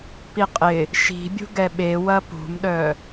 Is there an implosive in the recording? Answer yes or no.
yes